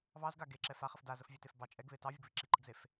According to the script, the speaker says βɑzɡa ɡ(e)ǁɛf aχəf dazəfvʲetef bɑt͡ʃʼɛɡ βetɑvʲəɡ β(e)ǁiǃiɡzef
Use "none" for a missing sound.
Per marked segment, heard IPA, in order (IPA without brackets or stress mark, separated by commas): e, i